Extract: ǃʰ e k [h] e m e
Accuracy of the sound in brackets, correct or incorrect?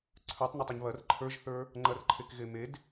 incorrect